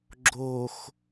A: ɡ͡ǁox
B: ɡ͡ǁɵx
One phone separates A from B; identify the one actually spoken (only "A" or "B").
A